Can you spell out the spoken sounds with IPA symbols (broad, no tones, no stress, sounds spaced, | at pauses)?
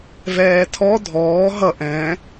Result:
v ɛː tʰ ɔ dʱ ɔː ɦ ʌ ʔ ɛ̃